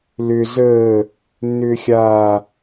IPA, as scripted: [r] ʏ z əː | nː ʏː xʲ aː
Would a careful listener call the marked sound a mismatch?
yes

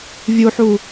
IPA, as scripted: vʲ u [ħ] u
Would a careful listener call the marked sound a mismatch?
no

